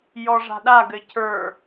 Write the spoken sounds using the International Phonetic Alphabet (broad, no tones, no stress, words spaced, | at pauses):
jɔʐa̤ɗa ɡɘcʰə˞